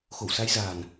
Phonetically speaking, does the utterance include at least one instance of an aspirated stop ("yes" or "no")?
no